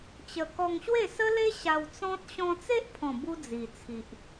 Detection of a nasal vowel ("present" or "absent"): present